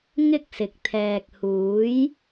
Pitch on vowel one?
high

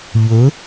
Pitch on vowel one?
rising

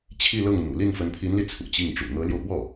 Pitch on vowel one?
falling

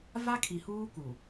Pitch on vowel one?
high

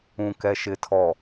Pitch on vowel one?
low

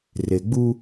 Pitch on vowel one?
low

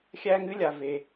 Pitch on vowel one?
high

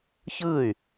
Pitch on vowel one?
falling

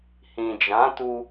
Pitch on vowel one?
low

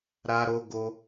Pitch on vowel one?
high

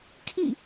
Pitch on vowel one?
falling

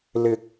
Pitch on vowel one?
rising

